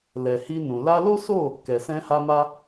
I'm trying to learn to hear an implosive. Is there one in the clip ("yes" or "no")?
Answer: no